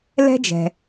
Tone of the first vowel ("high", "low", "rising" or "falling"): high